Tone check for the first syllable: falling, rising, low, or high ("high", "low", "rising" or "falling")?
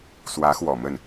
rising